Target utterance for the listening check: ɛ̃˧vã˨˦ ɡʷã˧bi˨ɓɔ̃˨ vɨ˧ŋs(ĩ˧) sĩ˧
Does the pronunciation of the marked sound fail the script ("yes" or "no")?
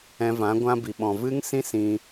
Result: no